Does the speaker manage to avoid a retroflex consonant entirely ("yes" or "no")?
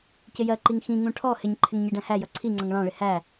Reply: no